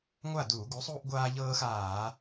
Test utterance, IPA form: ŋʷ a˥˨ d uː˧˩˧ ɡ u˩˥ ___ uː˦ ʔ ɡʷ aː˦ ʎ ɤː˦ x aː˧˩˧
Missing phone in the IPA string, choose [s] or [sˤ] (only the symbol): sˤ